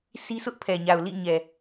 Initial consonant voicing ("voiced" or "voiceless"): voiceless